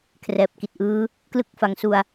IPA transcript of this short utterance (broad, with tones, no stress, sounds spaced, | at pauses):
kʰ r ɛː˨˩ p̚ k i˨˩ t̚ ʔ ɯː˦˥ | k l ɯ˦˥ k̚ f a˨˩ ŋ s u˨˩ a̯